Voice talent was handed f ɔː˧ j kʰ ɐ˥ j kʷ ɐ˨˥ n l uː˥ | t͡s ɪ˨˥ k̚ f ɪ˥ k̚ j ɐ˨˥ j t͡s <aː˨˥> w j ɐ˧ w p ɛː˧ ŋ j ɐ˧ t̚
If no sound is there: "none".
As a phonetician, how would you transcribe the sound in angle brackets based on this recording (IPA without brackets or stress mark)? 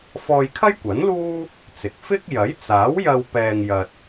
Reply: aː˨˥